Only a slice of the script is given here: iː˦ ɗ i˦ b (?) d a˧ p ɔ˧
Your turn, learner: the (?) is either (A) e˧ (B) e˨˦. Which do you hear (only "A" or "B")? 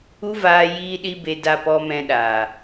A